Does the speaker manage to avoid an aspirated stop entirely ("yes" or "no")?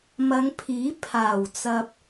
no